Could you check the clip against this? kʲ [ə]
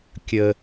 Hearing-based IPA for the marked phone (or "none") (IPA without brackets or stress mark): ə